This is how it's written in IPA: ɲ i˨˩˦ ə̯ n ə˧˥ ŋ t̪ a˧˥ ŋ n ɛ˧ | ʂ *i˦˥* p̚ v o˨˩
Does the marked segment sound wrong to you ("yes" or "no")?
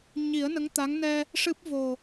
yes